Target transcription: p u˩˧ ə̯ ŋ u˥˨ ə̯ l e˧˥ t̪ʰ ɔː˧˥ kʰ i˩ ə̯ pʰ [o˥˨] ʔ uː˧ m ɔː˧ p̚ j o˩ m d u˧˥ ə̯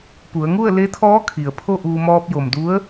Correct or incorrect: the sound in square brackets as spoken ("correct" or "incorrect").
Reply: correct